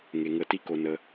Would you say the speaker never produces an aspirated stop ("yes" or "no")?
yes